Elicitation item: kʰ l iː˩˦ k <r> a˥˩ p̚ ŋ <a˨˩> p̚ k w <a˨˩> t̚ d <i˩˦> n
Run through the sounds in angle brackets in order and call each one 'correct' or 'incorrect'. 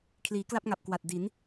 incorrect: l, correct, correct, correct

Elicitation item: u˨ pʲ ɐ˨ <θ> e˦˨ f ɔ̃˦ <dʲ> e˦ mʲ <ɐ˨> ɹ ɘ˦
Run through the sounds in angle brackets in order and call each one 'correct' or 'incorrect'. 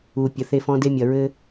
correct, incorrect: d, correct

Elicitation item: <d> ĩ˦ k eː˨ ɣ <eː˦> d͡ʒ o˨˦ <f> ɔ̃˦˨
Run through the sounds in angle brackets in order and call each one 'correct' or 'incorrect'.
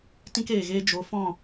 incorrect: t, correct, correct

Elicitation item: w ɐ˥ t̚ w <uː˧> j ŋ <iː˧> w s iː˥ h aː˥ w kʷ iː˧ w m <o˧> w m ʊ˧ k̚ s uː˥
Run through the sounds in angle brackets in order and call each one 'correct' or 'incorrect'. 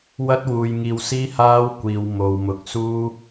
correct, correct, correct

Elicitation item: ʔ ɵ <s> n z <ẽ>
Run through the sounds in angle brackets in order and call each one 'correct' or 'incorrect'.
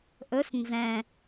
correct, incorrect: ɛ̃

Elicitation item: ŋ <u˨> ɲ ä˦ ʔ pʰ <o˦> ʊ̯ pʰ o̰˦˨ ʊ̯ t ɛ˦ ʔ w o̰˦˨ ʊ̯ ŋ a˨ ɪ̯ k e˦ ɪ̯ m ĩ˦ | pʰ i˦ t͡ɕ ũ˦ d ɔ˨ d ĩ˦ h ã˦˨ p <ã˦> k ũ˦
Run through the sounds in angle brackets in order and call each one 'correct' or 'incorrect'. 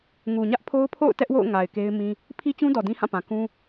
correct, correct, incorrect: ã˨

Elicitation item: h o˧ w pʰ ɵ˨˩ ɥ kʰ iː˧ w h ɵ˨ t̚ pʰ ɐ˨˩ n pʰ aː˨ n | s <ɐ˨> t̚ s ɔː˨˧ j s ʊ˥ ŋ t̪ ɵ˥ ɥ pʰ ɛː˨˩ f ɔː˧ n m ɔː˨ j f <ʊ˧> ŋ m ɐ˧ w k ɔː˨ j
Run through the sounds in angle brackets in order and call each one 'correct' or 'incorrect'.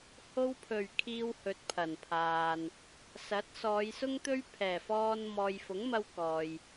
incorrect: ɐ˨˥, incorrect: ʊ˨˥

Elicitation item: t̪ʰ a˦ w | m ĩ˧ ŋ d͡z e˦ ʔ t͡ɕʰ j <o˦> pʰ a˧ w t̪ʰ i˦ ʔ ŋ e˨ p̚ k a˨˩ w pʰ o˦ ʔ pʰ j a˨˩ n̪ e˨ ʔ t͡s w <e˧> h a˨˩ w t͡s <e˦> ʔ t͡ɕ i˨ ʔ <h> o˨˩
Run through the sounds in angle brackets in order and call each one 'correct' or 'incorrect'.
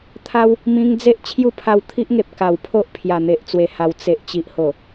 incorrect: u˦, incorrect: e˨˩, incorrect: e˨, correct

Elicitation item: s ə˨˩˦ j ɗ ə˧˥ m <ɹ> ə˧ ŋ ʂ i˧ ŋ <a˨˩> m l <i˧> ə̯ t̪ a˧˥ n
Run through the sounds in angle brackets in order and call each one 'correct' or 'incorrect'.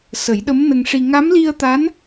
incorrect: n, incorrect: a˧˥, correct

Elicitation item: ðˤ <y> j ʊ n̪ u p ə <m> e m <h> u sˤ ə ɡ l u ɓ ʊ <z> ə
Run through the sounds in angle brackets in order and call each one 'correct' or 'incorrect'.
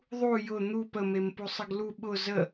incorrect: u, correct, incorrect: p, correct

